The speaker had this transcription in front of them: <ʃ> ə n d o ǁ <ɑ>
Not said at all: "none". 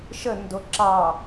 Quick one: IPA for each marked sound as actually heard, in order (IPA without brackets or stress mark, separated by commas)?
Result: ʃ, ɑ